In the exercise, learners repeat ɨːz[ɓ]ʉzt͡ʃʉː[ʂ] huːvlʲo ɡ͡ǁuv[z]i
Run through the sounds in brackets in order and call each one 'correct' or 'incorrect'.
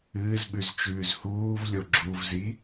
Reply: correct, incorrect, correct

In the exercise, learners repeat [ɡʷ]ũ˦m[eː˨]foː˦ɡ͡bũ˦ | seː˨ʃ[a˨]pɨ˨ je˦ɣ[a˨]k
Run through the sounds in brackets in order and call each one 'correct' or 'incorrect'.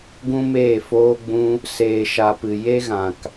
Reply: incorrect, incorrect, correct, incorrect

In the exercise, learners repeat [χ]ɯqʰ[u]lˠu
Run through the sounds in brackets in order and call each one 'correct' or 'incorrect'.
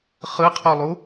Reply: correct, correct

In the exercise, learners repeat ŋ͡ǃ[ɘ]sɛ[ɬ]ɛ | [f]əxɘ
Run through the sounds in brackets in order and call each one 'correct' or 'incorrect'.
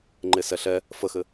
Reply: incorrect, correct, correct

